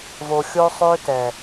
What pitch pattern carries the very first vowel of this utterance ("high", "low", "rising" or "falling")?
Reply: low